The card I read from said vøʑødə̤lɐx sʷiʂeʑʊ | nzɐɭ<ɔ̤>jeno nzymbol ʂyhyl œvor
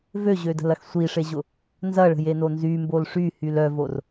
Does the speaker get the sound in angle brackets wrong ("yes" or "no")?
yes